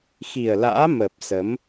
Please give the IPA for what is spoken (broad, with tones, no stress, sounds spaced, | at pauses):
x i˨˩ ə̯ l a̰ː˧˥ m əː˨˩ p̚ s ə˨˦ m